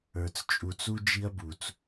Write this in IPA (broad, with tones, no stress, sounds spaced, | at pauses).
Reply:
ə˞˩ t͡s t͡ʃʼ u˩ t͡s u˧ d͡ʒ i˧ ɐ̯ b u˩ t͡s